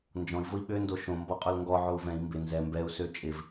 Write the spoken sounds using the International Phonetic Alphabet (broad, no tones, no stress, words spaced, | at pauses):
nd͡ʒɔ̃i̯vʊi̯ ɓøndo ʃõmbɔqʼol ŋɡɔ ʕou̯vɛ̃i̯ mbɪ nzɛ mbɛu̯ søt͡ʃʼɪv